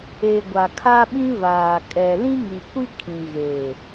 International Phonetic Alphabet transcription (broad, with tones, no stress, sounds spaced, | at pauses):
e˨ ɡʷ a˨ kʰ a˦ ɓ ĩ˦ v aː˨ kʼ ɛ˨ l ĩ˦ ŋ i˨ kʷ i˦ kʰ ĩ˨ ɣ e˨